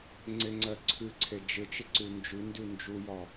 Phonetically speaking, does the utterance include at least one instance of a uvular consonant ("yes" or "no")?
no